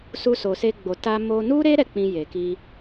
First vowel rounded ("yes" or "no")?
yes